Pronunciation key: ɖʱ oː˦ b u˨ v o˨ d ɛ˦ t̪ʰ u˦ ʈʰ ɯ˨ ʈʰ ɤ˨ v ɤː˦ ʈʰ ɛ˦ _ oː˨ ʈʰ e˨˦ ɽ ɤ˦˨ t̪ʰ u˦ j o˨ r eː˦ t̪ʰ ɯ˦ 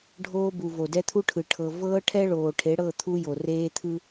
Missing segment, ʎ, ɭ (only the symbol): ɭ